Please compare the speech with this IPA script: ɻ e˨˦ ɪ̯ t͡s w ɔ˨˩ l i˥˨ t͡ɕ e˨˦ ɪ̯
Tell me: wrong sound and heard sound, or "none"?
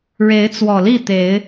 t͡ɕ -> t̪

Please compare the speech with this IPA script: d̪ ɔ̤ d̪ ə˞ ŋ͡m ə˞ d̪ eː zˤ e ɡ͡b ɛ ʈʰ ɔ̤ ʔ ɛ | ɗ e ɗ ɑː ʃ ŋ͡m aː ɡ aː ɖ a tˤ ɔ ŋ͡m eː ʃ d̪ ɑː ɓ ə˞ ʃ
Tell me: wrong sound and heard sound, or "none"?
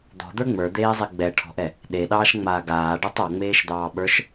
none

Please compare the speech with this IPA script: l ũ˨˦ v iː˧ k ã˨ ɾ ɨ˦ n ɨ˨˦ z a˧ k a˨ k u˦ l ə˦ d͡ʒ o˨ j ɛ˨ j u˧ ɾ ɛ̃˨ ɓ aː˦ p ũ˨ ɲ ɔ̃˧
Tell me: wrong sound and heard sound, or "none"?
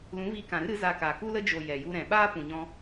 n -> ɾ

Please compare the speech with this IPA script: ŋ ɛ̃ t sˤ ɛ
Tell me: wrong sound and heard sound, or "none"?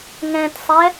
none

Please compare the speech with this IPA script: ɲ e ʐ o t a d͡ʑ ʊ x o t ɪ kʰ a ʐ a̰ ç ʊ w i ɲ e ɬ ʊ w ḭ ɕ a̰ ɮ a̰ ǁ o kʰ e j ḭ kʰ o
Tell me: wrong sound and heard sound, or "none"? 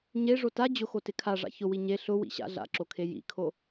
none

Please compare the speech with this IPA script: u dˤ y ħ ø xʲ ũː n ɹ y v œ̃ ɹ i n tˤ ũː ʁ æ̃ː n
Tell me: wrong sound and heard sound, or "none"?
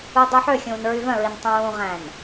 none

